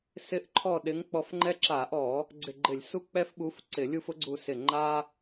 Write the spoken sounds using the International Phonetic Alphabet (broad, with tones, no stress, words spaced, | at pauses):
sɪ˨˥ʔǃʰɔ˧˩ ɗɪ˨˥ŋk͡pɔ˧˩fŋ͡ǃɛ˦ ǁa˧˩˧ʔɔ˧˩˧ | ɡ͡ǀɪ˧˩ɡ͡ǃɪ˧˩˧lʲ su˦k͡pɛ˦fɓu˨˥f ǀɪ˧˩˧lʲu˥˨f ʊ˨˥ɡ͡ǀu˧˩ sɪ˧˩ ŋ͡ǃa˦